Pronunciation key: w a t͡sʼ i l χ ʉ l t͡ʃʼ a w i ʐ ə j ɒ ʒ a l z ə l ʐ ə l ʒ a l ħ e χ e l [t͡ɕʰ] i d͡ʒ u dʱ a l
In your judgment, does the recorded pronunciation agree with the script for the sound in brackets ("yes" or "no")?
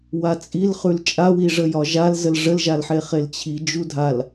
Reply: yes